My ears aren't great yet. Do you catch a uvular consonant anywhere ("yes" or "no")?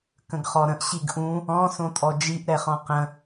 yes